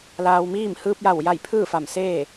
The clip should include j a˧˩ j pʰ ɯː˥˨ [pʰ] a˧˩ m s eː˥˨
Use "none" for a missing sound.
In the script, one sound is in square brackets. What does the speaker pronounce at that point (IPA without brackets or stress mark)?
f